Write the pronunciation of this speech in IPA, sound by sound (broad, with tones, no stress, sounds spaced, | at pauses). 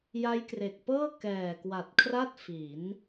j a˦˥ j k r e˨˩ k̚ p ɤː˥˩ k ɛː˨˩ k w a˨˩ t̚ kʰ r a˥˩ t̚ f i˩˦ n